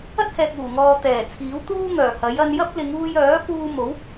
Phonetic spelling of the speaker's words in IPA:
ɐ˥ t̚ h ɛː˨ k̚ uː˨˩ ŋ ɔː˨ t̪ ɛː˨˩ t͡sʰ iː˨˥ w t̪ uː˥ ŋ œː˨˩ h ɐ˨˥ j ɐ˧ n j ɐ˥ p̚ l ɪ˨˧ ŋ uː˧ j œː˨˥ p uː˧ m o˨˥ w

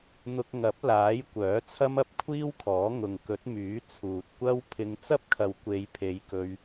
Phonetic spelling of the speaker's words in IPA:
n̪ ʊ˧ k̚ ŋ ɐ˨˥ p̚ l aː˨˥ j kʷ œː˨˥ t͡sʰ ɐ˥ m ɐ˥ p̚ kʷʰ iː˥ w kʰ ɔː˨˥ ŋ ʊ˨ ŋ k ɵ˨˥ t̚ m yː˨˥ t͡sʰ uː˨ t̚ kʷ ɐ˥ w pʰ ɪ˨˧ ŋ t͡s ɐ˥ p̚ kʰ ɐ˨ w kʷ e˨˧ j pʰ e˨˧ j k ɵ˧ ɥ

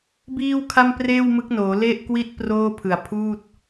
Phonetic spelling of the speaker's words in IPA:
b iː˥˩ w kʰ a˥˩ m p r eː˥˩ w m ɯ˦˥ k̚ n oː˩˦ l e˥˩ ʔ k w i˥˩ t̚ p r oː˥˩ pʰ ɯ˨˩ a̯ pʰ uː˥˩ t̚

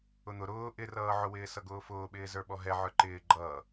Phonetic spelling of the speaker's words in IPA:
ʊ n̪ ʊ ɾ ʊː ʔ ɪ r ʌː ʕ ʊ w ɪː s ʌ ɡ ʊː f ʊː ɓ ɪː z ə˞ ɓ ɔ ɦ ɛ ʕ ə˞ ǃ ɪː ɡ͡ǃ ʌː

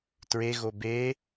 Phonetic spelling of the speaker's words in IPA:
t ɹ e ɣ o b e

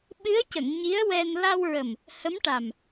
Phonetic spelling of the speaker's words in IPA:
ɓ ɨ˧˥ ə̯ c ə˨˩˨ ŋ ɲ i˧˥ ə̯ w ɛ˧ n l a˧ w ɹ ə˨˩ m | h ə˧˥ m ʈ a˨˩ m

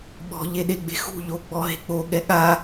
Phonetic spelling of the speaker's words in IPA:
ɓ ɔ̤ ʎ e ɗ e ɡ͡b e̤ x ṳ ʎ o ɡ͡b ɔ ɦ e̤ k͡p o ɠ ɛ ɠ a

